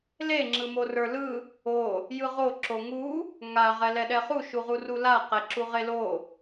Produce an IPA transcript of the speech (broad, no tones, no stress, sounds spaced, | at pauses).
l e ŋ͡ǁ ɯ m o r ə˞ l ɯ | o | j ɯ ʁ o ǁ o ŋ u | ŋ a ʁ ɛ l ɛ ɗ ɛ χ u ʃ u ʁ u r u l a q ɛ ǁ u ʁ e l o